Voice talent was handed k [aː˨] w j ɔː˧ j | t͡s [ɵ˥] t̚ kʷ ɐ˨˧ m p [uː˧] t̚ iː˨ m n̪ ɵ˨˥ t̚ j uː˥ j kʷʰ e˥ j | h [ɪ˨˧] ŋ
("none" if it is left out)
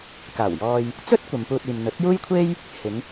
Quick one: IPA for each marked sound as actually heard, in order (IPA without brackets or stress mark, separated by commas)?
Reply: aː˨˩, ɵ˥, uː˧, ɪ˨˧